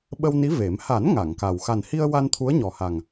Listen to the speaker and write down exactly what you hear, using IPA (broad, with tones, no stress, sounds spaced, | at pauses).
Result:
ɓ ə˧ w n i˧˥ v e˨˩˦ m h a˨˩˦ n ŋ a˨˩˨ ŋ k a˨˩ w x a˨˩ n h i˧ ə̯ w a˧ n t̪ʰ u˧˥ ə̯ ɲ ɔ˨˩ h a˨˩ ŋ